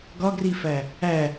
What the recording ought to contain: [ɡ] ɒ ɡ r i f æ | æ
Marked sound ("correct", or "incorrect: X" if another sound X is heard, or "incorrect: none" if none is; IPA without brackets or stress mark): correct